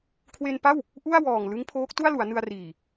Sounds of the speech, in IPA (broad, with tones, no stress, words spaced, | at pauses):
kʰwe˧npa˥˩w | ʔu˥˩a̯wɔː˨˩ŋ lɯ˦˥ŋpʰoː˦˥k̚ tu˥˩a̯lu˩˦a̯ nɯ˧a̯riː˨˩